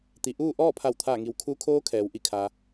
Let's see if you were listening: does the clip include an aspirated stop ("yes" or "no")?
yes